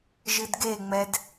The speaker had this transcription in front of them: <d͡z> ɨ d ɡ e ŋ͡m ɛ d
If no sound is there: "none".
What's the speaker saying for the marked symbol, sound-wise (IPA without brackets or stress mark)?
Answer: ʒ